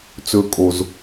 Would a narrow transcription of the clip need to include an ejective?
yes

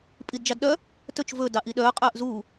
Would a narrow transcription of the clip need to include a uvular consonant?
yes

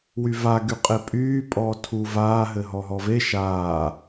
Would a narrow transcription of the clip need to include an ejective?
yes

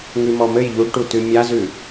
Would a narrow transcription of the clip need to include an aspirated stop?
no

